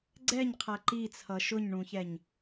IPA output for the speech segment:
ɡ͡ǀ ɛ ɲ qʰ æ ǃ i t͡sʰ ʌ ʃ ʊ ɲ ɳ ũ ç ɛ ɲ

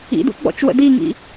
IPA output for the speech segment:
ḭ d ṵ ɡ͡b ɔ̰ t͡ʃ w ə̰ d i ŋ ḭ

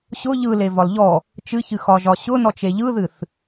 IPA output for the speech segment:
ɕ ʊ ʎ ɯ l e v ɒ l ʎ ɔ | t͡ʃ ɨ ç ɨ x ɒ ʒ ɒ ɕ ʊ n ɔ t͡ʃ e ʎ ɯ ð ɨ θ

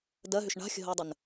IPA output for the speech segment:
d ɜ ɦ ʏ ʃ ɳ a̤ xʲ ə̤ ɦ əː dˤ ə n

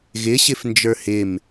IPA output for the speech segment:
ɣ ɪ ɕ ɪ f n d͡ʒ ə˞ h ɪ m

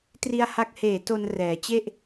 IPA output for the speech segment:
t r i˧ a̯ h a˦˥ k̚ h eː˨˩ t o˧ n r ɛː˩˦ t͡ɕ e˥˩ ʔ

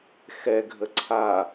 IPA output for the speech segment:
x ɛ ɡʱ ə ǀʰ a

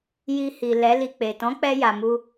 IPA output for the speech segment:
j i˧ h i˨ l ɛ˨˦ l i˧ k͡p e˨ t ɔ̃˨˦ k͡p ɛ˧ j a˨ m u˧

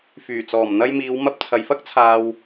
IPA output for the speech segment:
f yː˨˩ t͡s ɔː˨˩ m n̪ ɐ˧ j m iː˨˧ w m ɐ˧ p̚ t͡sʰ ɐ˨ j f ɐ˥ k̚ t͡sʰ aː˨ w

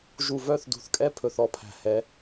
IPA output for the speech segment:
ʒ u˨ v œ˦˨ θ d ṳ˨ θ kʼ ɛ˦ pʰ ɵ˨ θ ɔ˦ pʰ æ̤˨ h ɛ˨˦

